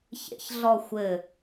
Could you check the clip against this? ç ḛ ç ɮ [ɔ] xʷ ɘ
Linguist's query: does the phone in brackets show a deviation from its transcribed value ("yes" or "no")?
no